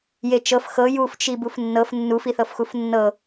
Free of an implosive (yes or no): yes